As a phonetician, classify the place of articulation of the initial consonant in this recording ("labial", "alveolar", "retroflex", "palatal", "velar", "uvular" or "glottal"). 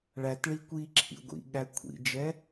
retroflex